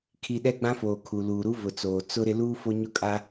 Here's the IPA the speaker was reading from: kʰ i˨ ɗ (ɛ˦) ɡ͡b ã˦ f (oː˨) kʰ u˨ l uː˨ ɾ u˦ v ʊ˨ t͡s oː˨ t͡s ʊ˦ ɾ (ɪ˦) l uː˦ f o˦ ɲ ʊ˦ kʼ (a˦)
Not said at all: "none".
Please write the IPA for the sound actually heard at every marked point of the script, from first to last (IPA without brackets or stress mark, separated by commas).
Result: ɛ˦, oː˨, ɪ˦, a˦